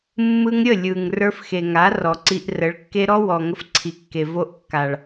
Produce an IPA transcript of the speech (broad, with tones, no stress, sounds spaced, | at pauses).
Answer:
mː ɯ˧ ŋ ɾʲ ə˦˨ lʲ ɯ˨ ŋ r ə˞˧ f x e˨ ŋ a˨˦ r ɔ˨ ǀ i˧ ʔ r ə˨˦ ɭ kː e˦ ɾ ɔ˦ w ɔ˨ ŋ ə˧ f ǀʰ i˨ kː e˨ v o˧ ʔ kː a˨ ɭ